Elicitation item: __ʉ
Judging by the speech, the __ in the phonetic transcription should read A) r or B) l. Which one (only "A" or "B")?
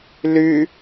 B